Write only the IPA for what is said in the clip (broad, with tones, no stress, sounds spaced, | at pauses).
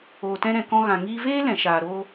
oː˨ t ɛ̃˧ ɾ ɛ̃˨ k ɔ̃˧ ɣ ã˨ ŋ iː˧ v eː˦ l ɛ̃˨ ʃ aː˨ ɾ oː˧